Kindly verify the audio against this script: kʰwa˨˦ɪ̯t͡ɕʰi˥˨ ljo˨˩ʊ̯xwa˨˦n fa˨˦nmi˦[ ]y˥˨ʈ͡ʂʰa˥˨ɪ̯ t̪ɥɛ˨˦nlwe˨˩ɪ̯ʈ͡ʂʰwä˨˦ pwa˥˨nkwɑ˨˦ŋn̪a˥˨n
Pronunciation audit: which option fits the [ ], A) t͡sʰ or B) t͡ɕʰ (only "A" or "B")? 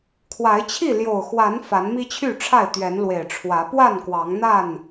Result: B